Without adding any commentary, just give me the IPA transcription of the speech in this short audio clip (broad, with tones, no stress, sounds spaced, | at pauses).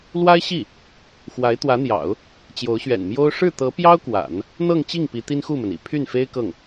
l w a˥ ɪ̯ ɕ i˥˩ | x w a˧˥ ɪ̯ t̪ w ä˧˥ n̪ j ɑ̰˨˩˦ ʊ̯ | t͡ɕ j o˧˥ ʊ̯ ɕ ɥ ɛ̰˨˩ n m j o˥ ʊ̯ ʂ ɻ̩˥˩ t̪ ɤ˧˥ p j ɑ˥ ʊ̯ k w a̰˨˩˦ n | n̪ ɤ˥˧ ŋ t͡ɕ i˥˩ ŋ p i˧˥ t̪ i˥ n x u˥˩ m ə˩ n ḭ˨˩ pʰ y˥˩ n f e˥ ɪ̯ k ɤ˥˩ ŋ